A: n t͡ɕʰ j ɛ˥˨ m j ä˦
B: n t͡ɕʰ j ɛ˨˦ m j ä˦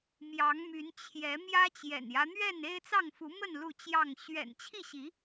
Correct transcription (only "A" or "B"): B